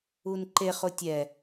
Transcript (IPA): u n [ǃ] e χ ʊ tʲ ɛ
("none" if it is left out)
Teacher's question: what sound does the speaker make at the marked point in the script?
ǃ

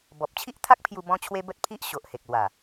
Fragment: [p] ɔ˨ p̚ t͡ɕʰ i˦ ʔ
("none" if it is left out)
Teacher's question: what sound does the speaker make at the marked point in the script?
b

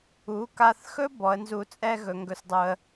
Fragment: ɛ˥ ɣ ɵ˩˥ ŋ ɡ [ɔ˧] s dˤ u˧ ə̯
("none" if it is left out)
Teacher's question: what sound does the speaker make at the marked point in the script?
ɵ˧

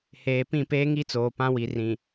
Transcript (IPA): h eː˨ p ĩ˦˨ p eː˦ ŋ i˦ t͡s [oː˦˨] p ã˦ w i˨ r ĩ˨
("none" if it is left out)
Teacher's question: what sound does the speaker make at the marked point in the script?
oː˨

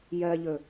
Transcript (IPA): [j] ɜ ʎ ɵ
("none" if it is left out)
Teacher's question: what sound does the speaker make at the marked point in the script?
j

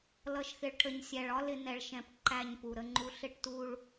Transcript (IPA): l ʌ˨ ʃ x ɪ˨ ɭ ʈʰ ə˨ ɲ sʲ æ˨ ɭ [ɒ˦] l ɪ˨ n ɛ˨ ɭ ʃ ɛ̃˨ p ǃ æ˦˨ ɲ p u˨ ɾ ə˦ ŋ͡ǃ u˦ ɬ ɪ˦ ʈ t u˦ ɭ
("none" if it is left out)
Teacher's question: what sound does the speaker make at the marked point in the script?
ɒ˦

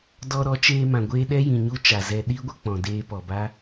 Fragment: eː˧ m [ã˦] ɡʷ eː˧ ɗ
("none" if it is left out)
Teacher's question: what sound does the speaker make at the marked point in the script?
ã˨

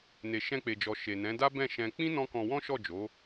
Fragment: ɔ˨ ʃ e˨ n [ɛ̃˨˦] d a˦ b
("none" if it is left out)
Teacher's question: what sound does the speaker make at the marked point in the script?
ɛ̃˨˦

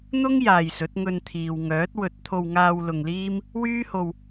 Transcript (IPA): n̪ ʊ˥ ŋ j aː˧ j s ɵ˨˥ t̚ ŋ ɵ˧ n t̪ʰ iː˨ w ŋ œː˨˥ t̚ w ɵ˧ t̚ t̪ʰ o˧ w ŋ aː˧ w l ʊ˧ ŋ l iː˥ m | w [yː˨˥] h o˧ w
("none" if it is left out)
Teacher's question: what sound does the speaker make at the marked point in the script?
yː˥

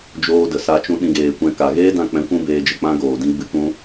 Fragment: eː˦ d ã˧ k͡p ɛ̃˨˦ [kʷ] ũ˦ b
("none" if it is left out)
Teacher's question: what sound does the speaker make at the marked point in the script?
kʷ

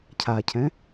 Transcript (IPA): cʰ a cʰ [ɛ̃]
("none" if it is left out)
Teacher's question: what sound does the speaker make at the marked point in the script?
ɛ̃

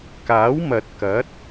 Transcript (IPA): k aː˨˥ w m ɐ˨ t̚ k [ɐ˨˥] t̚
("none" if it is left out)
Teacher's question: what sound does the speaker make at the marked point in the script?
ɐ˨˥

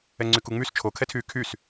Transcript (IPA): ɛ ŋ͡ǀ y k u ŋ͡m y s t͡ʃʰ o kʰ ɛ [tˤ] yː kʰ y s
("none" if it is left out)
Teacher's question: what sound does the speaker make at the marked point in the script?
tʰ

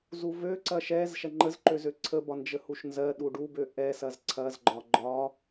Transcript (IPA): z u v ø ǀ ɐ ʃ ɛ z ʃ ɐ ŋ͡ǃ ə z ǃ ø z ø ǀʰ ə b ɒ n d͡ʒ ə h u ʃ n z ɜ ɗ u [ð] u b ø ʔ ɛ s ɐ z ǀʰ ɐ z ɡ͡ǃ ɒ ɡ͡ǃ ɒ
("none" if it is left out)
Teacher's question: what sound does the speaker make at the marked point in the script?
ɖ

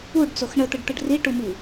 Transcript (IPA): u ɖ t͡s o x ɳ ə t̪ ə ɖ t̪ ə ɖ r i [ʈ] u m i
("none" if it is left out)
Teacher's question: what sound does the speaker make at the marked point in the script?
ʈ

